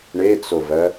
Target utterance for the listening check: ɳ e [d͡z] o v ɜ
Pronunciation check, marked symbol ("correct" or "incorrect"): incorrect